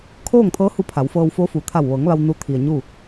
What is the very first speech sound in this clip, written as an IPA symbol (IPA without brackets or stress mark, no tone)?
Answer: kʰ